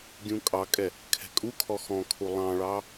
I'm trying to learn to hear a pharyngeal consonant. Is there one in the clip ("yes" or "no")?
no